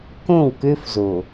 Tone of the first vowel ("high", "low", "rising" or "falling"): falling